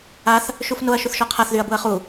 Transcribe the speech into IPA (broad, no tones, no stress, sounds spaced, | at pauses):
a θ | ʃ u f n o ɐ̯ ʃ u θ ʃ ɔ qʰ a θ ð y ɐ̯ b u ɐ̯ χ u